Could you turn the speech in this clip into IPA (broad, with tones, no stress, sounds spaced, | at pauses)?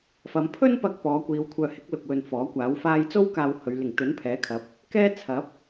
f ɐ˨˧ m pʰ ɵ˥ n p ɐ˧ k̚ p ɔː˨˧ kʷ iː˨˧ w kʷʰ œː˨ h ɪ˨˥ k̚ l ʊ˨ k̚ w ɵ˨ n f ɔː˨˥ kʷ aː˨˥ w f aː˥ j t͡s o˥ w k aː˨ w h ɵ˨˧ ɥ l ɪ˨˩ ŋ t̪ ɵ˨˥ n pʰ ɛː˨˥ kʰ ɐ˨˥ p̚ | k ɛː˥ t͡sʰ ɐ˨˥ p̚